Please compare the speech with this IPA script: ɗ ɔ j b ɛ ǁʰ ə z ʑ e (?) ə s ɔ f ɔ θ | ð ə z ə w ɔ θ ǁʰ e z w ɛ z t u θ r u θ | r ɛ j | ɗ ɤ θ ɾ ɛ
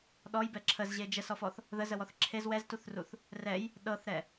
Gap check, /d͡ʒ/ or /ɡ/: d͡ʒ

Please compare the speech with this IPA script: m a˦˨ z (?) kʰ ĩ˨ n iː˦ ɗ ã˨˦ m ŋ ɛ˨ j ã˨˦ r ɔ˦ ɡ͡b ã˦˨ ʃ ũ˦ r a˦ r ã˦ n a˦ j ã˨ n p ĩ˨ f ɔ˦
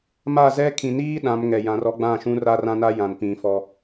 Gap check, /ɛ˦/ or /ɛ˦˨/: ɛ˦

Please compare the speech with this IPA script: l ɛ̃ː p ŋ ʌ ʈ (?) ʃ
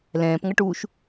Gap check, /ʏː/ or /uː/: uː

